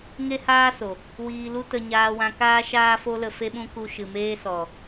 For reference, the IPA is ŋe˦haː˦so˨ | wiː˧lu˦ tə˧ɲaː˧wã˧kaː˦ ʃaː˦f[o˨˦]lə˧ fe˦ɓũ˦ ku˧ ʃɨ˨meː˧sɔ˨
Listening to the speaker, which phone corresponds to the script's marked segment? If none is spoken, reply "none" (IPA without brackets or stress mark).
o˦